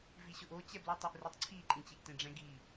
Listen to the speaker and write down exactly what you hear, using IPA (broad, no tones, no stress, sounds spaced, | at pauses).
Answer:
v i ɕ ʊ ʔ o t͡ɕ ɛ b l u tˤ ʊ ʔ r i tˤ ǀʰ i ǃʼ ĩ t͡ɕ i ʔ t ẽ ɖ͡ʐ ɛ̃ ɡ i